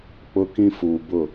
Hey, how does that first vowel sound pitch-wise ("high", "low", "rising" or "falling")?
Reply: high